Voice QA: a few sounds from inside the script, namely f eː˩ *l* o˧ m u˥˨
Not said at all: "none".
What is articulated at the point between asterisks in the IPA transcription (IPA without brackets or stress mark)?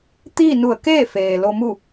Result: l